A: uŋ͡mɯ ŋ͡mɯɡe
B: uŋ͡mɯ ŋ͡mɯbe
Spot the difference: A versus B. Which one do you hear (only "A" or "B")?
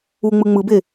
B